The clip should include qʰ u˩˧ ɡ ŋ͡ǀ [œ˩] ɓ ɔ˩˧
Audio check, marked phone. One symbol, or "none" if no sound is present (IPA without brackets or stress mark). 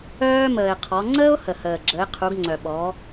œ˩